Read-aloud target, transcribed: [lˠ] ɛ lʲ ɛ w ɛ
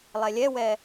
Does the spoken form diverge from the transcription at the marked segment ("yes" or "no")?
no